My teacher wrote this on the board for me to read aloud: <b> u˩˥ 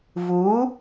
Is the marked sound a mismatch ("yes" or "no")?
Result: yes